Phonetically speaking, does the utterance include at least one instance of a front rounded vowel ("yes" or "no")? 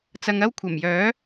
yes